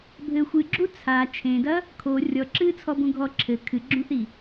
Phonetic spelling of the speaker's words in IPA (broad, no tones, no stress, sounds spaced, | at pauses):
bʱ ɘ xʷ ɨ ɡ͡ǁ u t͡sʰ a t͡ʃʰ ẽ d ɐ | kʰ o rʲ ɔ ǁ ɨː t͡sʰ ɔ b ũ ɡʱ ɔ ǁʰ ɘ kʰ ɨ ɡ͡ǁ ũ θ i